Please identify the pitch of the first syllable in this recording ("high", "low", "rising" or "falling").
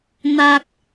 high